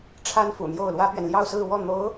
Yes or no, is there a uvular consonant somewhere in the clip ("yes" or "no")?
no